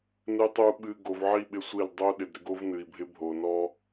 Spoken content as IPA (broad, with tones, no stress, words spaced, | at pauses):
nɨ˨tˤu˨ ɓɨ˨ ɡo˨vʕi˦˨ɓɪ˦sʷi˦˨l dˤo˦ ɗɪ˨dɾɪ˦ɡo˦v nɨ˨i̯bʱɪ˦ bʱo˨nɔ˦